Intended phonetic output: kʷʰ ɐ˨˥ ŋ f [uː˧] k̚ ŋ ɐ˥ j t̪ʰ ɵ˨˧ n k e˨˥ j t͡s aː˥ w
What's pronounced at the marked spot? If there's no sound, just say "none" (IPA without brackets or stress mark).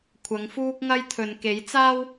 uː˥